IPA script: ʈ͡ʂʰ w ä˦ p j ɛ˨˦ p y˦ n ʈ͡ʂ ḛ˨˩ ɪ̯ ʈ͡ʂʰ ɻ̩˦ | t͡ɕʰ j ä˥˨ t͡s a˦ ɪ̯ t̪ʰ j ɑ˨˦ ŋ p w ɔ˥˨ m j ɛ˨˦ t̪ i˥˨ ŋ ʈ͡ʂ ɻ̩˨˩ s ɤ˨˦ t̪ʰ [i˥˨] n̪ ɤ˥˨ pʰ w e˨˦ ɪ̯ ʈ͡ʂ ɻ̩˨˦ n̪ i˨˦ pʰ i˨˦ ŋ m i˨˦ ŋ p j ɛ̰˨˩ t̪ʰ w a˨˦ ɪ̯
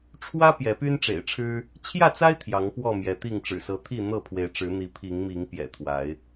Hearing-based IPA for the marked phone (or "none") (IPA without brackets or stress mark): i˥˨